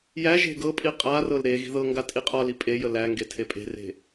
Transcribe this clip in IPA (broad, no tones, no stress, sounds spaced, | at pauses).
j æ ʒ e̤ ɡ ɤ pʼ i qʼ a r ɤ l ɾ e ɣ i̤ ð ɤ ŋ ɡ a tʼ i qʼ ɒ l i pʼ e j ə l æ ŋ ɡ e tʰ e pʼ e̤ r e̤